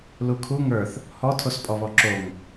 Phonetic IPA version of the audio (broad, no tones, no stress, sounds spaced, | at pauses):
l u kʰ u ŋ ə˞ θ | h ɔ tʰ o s pʼ ɔ β ɔ ǁ o ŋ